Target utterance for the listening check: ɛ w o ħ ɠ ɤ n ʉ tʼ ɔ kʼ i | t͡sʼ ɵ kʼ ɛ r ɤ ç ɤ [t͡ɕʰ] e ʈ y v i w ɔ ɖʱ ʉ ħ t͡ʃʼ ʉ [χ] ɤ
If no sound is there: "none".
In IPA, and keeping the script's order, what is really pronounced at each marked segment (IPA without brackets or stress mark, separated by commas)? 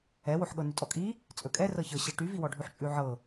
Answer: ɕ, ʕ